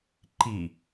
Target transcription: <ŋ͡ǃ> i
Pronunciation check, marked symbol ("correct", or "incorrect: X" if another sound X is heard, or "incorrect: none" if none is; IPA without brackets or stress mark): incorrect: ǃ